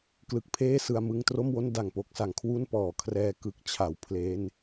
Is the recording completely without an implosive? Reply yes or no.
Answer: yes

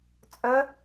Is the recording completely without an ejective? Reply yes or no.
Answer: no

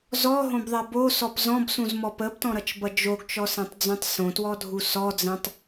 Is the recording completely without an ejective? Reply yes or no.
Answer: yes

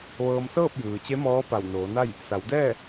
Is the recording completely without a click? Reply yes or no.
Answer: yes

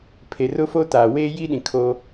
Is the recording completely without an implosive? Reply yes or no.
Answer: no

